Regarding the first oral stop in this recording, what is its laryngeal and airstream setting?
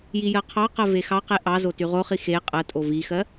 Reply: aspirated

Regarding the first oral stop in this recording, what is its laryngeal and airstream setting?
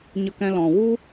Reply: plain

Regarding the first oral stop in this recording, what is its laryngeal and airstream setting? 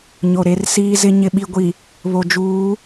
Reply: implosive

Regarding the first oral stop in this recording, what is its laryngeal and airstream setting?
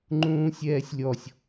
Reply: click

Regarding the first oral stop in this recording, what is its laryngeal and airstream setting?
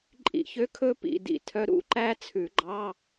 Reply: click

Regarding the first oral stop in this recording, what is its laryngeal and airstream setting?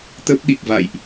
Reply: plain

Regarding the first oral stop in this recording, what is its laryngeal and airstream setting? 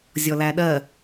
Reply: implosive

